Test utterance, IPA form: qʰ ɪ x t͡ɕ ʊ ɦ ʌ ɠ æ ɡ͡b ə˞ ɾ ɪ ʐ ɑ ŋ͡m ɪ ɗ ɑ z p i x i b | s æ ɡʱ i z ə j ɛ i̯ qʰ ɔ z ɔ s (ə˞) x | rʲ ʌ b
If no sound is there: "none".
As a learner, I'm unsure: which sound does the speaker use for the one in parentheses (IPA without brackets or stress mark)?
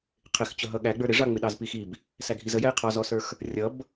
ə˞